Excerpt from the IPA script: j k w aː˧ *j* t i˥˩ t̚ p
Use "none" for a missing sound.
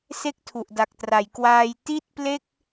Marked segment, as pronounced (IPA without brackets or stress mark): j